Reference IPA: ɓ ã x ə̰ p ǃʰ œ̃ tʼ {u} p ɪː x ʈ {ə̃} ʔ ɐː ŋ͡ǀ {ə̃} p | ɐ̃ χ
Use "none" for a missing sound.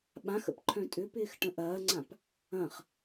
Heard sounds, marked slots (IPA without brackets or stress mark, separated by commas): ʏ, ə̃, ã